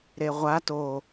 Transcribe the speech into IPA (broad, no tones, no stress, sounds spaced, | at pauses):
ɾ e ʁʷ a t o